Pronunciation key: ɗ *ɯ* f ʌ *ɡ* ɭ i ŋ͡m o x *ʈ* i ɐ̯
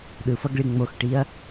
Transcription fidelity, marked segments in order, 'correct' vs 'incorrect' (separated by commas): correct, correct, correct